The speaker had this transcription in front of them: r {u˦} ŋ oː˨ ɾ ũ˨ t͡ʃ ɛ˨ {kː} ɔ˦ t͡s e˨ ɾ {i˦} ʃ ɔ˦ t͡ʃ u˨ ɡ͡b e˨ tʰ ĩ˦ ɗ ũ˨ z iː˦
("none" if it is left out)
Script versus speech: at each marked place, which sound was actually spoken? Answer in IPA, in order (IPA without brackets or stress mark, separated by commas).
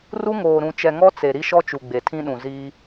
u˦, ŋ, i˦